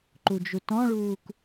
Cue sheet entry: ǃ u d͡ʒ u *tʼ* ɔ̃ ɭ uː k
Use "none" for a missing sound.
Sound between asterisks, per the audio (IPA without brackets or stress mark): t